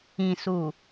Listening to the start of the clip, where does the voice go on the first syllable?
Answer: low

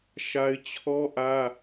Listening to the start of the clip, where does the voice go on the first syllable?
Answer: high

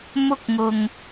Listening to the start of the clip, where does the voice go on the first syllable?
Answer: high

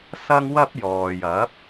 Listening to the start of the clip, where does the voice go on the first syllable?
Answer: high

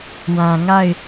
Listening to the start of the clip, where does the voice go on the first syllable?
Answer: low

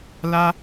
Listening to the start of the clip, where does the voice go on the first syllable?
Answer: high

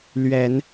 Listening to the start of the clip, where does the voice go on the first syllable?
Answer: low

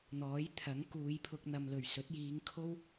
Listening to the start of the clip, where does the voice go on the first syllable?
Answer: rising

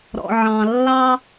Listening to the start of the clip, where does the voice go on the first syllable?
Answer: low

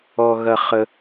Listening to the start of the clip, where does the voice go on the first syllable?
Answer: low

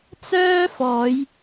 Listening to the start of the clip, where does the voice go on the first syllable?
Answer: high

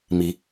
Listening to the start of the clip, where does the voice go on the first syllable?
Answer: rising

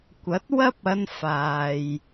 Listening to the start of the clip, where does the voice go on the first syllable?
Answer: rising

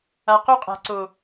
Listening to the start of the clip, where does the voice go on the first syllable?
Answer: low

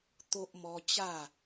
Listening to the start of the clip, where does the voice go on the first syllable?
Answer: high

